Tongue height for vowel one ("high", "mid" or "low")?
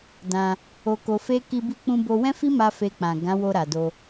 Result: low